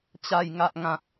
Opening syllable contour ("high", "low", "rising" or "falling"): low